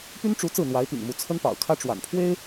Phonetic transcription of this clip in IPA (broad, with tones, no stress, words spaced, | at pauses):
py˥nʈ͡ʂu˧˥ t͡sɹ̩˥˩n̪wa˧˥ɪ̯pḭ˨˩ŋmu˧˥ t͡sʰə˥npɑ̰˨˩ʊ̯kʰä˥ ʈ͡ʂwa̰˨˩npʰwe˥ɪ̯